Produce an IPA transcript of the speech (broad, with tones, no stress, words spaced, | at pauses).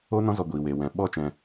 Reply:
o˦nɔ̃˦zɔ˧ ɡʷiː˨weː˨wɛ̃˨ ɓɔ˦ t͡ʃɛ̃˧